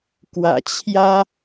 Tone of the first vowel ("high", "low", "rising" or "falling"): low